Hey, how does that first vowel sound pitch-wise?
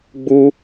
high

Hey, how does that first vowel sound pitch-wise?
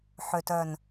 low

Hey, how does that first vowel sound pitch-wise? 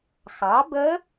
rising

